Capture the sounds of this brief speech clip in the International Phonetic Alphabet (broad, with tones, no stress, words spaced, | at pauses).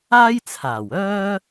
aː˥jt͡sʰaː˨˩wœː˥